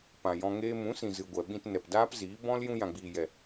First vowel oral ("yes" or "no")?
no